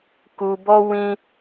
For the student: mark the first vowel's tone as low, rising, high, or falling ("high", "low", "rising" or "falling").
low